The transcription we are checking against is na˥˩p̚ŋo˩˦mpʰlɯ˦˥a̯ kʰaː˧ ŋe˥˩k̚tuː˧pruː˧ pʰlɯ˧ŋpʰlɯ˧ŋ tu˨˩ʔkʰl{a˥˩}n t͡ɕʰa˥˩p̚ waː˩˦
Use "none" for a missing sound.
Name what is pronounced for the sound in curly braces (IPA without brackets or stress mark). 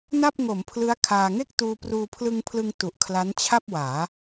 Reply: a˦˥